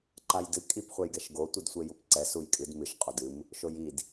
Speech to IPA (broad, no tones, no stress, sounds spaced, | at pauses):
ǃ a j d ɨ kʼ i p χʷ ɛ j ɡ ɛ ʃ ɡ o tʷ ɨ d sʷ e j u p ǀ ɛ s u j kʼ ɨ d m ɨ ʃ qʼ o d ɨ m | ʃ o j i d